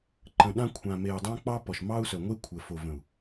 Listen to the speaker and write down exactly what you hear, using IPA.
ǃə̃˨ɗã˦ kʷʰã˨me˨y̯dˤã˦k͡pɑ˦ pɔ˨ʃmɑ˦u̯sœ˨ŋʷe˦ kʷʰə˨ fo˨və̃˨u̯

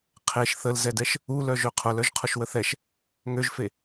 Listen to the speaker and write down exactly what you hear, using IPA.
qʰeʃ θəlzɛdɛʃ | u lœʒøqʰʊl œʒqʰʊʃwəθɛʃ | ŋøʒfe

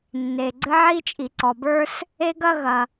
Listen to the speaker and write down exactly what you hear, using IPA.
nːe˩ɡ͡ǀɘ˥ ʕi˥t͡ʃʼi˩ǀɔ˩bə˞˥s | e˥ɡɐ˥ ɣɐ˩

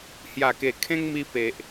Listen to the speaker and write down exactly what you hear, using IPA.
hja˨˩ke˨˩ kʰẽ˦ŋmi˧ pe˨ʔ

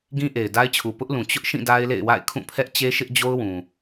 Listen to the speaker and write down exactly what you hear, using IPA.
ɡĩ˦ʔe˨ɪ̯da˦ɪ̯t͡ɕʰu˨ pʊ˦ʔlũ˨ t͡ɕʊ˦ʔʃĩ˦˨ da˦ɪ̯lḛ˦˨ɪ̯ wa̰˦˨ɪ̯kʰũ˦˨pʰɛ˦ʔ t͡ɕe˦ʃɪ˦ʔd͡ʑo˦ʊ̯ wũ˨

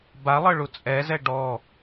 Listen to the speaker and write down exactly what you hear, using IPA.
balˠɤ ɭut͡sʼɛzɛ ɖɔ

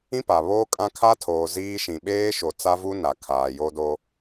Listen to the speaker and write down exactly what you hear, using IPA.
ĩ˦pa˨βoː˦kʼã˦ kʰa˦tʰoː˨ ziː˦ ʃĩ˨ɓeː˦ʃo˨ t͡sa˦vu˦ na˨kʰaː˨ jo˦do˦

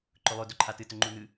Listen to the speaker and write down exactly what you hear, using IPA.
ǃɵlˠɵ dɵǃʰatɨ tɵŋ͡ǃun̪ɨ

